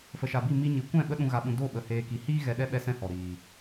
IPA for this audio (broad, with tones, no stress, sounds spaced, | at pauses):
f ə˨ ʃ a˨ b i˦˨ m i˦ ɲ i˨˦ kʷ ɛ̃˦˨ ɓ ə˦ ɗ ũ˧ ɣ a˧ ɓ ũ˧ d o˦˨ ɓ ə˨ h eː˧ k i˨˦ h iː˦ ɣ ɛ˧ ɗ ɛ˦ ɓ ɛ˦ s ɛ̃˦ h ɔ˨ ɾ iː˨